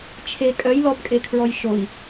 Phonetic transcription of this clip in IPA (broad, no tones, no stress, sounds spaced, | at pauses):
t͡ʃʰ e kʼ œ j l ɔ b kʼ e kʰ ɹ ɔ j ʃ o i̯